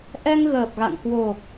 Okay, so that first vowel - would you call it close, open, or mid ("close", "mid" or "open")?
mid